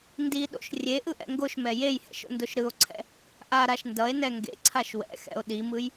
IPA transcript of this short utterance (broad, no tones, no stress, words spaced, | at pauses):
ndiɗo̰ʃ rʲeʔɯʔɛ̰ ŋɡoʃmɛ jejhɛ̰ʃo̰ndoʃ ɾɯo̯ǀʰɛ̰ | ʔaɾaʃ ndʌe̯nɛ ŋɡḛǀʰaʃ wɛ̰xɛ̰o̯ ɗimɯj